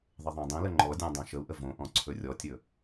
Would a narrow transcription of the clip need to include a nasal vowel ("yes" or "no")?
yes